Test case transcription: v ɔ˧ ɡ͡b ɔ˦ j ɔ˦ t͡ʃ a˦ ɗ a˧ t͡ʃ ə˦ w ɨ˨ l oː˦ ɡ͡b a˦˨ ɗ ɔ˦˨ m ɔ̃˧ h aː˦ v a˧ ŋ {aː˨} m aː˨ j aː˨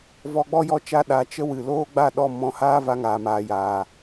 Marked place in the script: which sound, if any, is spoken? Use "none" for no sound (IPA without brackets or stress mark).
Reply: aː˨